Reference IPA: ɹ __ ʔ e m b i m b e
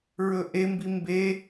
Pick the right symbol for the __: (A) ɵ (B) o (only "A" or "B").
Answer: A